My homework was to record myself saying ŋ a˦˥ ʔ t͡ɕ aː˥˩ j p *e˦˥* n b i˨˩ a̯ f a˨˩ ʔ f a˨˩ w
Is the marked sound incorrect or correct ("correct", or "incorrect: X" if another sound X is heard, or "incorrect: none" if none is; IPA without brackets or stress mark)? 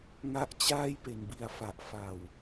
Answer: incorrect: e˨˩